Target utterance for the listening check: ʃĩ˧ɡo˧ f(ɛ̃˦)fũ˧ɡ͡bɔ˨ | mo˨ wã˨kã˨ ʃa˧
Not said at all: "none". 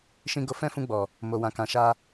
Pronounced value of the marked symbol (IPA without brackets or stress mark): ɛ̃˦